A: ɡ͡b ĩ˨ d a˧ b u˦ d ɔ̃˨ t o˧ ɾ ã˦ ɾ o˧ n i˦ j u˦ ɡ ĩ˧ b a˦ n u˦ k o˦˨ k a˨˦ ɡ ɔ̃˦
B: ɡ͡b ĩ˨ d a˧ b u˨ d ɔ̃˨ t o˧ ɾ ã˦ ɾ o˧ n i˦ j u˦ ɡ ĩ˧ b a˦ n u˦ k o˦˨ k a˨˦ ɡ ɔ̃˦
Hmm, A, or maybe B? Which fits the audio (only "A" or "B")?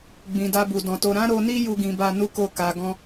B